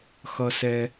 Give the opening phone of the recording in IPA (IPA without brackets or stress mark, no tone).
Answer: x